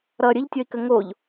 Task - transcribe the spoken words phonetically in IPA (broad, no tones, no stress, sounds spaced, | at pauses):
ɾ ʌ ɾʲ ə ʎ tʲ ɔ i̯ k ə ŋ o ʎ